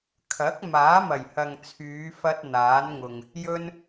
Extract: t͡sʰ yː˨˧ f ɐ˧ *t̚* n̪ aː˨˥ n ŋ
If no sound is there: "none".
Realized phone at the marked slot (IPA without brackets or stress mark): t̚